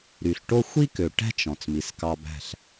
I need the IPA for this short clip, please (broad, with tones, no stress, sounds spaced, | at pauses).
ɾ y˨ ɬ ʈ o˦ xʷ i˦ k ø˨ ʈ æ̤˦ t͡ʃ ɔ̃˨ t͡s m i˨ s k ɑ˧ b æ̤˦˨ ɬ